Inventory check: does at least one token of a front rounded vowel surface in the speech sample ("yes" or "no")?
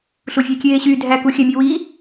yes